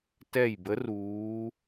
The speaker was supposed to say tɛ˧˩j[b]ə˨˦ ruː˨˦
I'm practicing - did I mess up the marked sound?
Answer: no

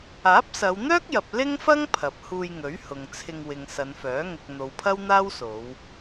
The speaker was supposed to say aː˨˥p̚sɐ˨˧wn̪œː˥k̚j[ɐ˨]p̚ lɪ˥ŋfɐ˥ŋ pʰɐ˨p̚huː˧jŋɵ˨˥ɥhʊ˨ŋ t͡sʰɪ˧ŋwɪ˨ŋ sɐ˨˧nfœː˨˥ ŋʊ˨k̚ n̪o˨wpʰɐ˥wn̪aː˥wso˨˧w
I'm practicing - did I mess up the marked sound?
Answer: no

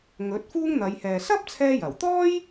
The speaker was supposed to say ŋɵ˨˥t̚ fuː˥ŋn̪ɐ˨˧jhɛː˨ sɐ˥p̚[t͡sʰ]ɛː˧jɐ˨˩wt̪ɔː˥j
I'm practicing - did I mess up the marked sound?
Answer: no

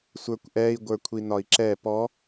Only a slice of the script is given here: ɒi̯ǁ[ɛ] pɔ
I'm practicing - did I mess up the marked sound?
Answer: no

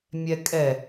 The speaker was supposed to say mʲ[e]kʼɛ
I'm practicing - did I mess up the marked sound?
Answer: yes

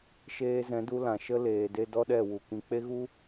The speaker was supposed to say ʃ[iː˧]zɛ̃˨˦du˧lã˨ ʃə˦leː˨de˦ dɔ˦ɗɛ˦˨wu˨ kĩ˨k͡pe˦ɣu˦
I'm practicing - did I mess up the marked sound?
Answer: yes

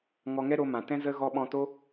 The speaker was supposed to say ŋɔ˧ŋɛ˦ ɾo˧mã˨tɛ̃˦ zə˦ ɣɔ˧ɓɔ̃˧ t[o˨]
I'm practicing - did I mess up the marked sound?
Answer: yes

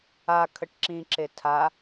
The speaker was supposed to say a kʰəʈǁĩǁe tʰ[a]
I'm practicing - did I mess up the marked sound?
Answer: no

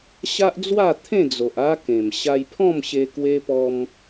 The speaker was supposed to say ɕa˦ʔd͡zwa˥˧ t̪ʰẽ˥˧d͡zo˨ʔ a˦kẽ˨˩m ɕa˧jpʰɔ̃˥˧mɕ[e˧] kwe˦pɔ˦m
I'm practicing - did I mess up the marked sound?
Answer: no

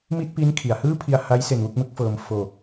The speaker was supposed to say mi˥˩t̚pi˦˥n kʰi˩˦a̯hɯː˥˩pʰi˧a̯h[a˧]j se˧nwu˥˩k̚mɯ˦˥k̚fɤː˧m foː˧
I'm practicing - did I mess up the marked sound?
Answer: yes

